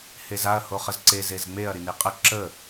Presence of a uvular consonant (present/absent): present